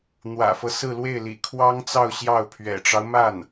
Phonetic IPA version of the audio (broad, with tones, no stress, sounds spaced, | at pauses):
n̪ w ä̰˨˩ f ɤ˦ s ɹ̩˥˧ l w e˥˩ ɪ̯ l ḭ˨˩ kʰ w ɑ˥ ŋ t͡s ɑ˥˧ ʊ̯ ɕ j ɑ˥˩ ʊ̯ pʰ ɥ ɛ̰˨˩ ʈ͡ʂ ɑ˦ ʊ̯ m a˥˩ n